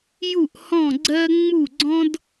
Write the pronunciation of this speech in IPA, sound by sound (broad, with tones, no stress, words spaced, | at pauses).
ju˥˩ʔhɔ̃˥˩ɡ͡ǀɜ˥ ŋ͡mu˥˩ɡ͡ǀɔ̃˥d